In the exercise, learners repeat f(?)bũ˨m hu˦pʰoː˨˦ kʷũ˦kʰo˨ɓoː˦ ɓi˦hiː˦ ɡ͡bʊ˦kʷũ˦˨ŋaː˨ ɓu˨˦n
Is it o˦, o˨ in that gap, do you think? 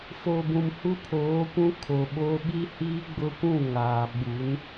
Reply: o˨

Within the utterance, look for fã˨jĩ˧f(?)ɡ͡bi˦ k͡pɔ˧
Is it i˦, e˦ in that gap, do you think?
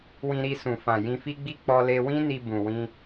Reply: i˦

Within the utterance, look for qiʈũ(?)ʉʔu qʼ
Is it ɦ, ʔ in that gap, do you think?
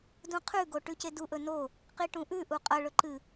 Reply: ʔ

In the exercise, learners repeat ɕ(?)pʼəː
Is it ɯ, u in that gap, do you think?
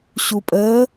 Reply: u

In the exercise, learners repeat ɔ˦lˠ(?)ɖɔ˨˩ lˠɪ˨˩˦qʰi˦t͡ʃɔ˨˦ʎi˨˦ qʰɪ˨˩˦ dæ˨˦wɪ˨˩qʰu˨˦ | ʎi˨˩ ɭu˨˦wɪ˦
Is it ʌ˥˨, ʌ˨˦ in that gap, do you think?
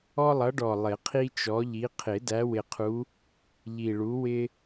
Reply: ʌ˨˦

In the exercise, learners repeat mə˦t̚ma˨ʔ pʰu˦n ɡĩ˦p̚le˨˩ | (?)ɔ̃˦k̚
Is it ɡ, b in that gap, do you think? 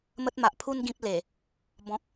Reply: b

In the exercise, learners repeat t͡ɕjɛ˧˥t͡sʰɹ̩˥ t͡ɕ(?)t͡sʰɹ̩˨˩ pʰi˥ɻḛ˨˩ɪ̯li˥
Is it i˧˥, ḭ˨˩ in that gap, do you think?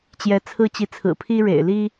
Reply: i˧˥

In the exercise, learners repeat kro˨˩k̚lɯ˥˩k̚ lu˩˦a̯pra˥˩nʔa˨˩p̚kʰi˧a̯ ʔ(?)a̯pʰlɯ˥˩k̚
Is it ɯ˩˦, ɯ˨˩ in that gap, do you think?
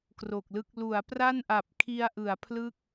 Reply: ɯ˩˦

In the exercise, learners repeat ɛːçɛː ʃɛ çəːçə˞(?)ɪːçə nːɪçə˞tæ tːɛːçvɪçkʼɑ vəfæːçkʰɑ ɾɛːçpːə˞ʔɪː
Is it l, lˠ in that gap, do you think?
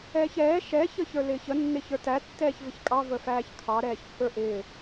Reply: l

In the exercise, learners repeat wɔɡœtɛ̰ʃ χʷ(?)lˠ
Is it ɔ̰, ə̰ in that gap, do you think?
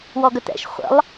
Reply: ə̰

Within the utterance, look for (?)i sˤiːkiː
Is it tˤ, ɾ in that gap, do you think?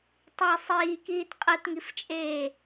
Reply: tˤ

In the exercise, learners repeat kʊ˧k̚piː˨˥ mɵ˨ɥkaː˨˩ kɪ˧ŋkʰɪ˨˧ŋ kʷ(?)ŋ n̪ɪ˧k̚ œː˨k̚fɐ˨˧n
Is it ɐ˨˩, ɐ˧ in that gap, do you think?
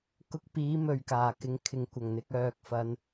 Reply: ɐ˨˩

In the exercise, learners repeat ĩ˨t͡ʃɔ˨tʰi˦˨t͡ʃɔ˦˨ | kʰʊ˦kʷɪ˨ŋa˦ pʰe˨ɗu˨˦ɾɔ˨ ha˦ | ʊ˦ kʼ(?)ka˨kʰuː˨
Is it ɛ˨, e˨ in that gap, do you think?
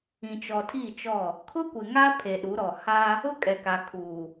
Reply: ɛ˨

